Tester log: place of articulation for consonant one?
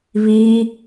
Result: labial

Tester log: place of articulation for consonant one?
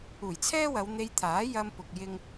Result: palatal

